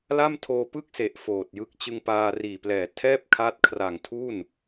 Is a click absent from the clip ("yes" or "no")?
yes